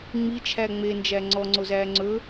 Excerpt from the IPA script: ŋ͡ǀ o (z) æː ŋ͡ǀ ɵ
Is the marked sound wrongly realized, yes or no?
no